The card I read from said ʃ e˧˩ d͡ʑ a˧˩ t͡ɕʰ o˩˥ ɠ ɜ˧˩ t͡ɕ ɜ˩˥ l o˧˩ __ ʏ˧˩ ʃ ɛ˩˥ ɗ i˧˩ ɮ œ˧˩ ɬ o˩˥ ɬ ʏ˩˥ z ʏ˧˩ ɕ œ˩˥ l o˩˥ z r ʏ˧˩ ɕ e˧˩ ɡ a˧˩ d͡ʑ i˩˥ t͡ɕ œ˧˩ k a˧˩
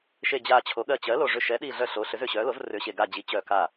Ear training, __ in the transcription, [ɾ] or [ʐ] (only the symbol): ʐ